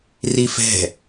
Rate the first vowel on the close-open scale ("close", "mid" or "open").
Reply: close